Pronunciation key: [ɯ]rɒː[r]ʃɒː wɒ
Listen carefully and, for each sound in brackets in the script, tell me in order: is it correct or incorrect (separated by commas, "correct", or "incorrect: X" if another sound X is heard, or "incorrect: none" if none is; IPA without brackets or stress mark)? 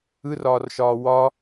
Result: correct, correct